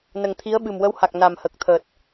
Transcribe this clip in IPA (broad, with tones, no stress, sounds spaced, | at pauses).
n ə˨˩ ŋ t̪ʰ i˧˥ ə̯ ɓ ɨ˨˩ m w ə˧˥ w h a˨˩ k̚ n a˨˩ m h ə˨˩ k̚ t̪ʰ əː˨˩ t̚